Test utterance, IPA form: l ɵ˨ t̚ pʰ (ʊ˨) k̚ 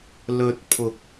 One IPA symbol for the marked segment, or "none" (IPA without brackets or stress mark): ʊ˨